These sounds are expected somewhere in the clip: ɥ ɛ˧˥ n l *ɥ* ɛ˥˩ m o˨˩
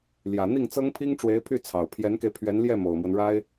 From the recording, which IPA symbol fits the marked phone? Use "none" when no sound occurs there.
j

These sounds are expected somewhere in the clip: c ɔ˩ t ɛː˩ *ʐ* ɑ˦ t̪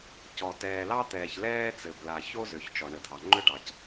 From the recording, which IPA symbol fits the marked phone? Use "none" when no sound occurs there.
l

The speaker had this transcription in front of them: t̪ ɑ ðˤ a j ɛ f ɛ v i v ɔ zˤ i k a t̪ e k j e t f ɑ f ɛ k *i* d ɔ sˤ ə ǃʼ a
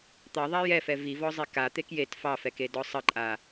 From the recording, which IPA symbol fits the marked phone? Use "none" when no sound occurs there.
e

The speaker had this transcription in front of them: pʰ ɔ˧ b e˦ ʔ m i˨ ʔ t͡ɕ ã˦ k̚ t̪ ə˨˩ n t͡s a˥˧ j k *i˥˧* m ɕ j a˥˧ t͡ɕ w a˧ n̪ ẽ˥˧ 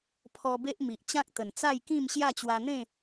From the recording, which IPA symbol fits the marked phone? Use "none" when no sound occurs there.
ĩ˥˧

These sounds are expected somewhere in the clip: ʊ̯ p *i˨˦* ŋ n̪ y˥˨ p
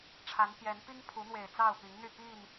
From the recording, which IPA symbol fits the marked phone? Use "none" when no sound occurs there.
i˨˦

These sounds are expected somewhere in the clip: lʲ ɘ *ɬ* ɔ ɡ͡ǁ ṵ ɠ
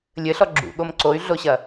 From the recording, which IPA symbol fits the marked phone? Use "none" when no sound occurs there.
ɬ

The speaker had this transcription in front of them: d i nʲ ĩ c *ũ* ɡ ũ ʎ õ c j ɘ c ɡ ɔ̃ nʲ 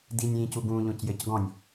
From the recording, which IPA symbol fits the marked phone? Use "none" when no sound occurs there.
u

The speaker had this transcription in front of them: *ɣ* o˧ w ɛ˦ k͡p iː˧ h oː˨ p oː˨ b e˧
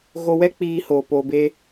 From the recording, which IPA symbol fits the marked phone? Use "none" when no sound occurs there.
ɣ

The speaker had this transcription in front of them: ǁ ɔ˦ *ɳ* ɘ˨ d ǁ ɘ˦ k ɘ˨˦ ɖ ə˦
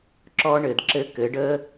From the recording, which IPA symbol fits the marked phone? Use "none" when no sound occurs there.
ɳ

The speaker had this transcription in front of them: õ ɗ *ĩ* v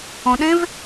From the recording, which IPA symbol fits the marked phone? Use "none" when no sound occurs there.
ẽ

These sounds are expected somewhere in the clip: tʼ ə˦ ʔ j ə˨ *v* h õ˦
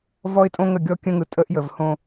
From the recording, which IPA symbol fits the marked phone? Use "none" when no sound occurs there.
v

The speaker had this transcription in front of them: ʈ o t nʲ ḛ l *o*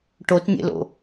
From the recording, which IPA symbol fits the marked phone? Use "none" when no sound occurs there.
o̰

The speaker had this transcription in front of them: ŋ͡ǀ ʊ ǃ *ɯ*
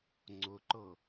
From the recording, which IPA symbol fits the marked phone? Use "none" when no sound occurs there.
ɤ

